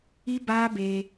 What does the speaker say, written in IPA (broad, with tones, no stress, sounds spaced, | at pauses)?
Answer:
i˦ b aː˦ b e˧